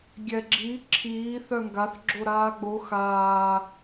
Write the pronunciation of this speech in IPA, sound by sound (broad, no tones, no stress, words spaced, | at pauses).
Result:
ɡʲɛɡ͡ǁi ǁʰiː θœŋɡaθ ɡ͡ǁoɾaːɡ͡bo xaː